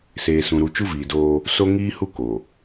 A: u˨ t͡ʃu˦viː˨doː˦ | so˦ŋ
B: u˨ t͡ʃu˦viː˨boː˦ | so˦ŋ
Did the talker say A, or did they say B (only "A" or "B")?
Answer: A